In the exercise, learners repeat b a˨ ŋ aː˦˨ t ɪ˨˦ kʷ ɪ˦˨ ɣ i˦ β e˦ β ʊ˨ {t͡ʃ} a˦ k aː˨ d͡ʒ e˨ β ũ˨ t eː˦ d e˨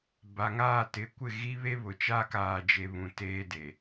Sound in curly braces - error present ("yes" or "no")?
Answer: no